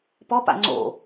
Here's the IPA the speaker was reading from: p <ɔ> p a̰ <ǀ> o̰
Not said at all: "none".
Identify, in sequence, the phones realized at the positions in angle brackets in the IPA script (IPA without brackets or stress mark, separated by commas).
ɔ, ŋ͡ǀ